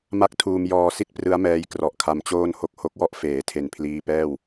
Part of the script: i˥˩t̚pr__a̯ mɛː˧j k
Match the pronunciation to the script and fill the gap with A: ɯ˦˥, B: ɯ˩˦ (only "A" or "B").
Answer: A